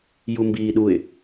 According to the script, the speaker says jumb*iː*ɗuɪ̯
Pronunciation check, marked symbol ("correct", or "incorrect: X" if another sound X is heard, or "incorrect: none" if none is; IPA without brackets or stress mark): correct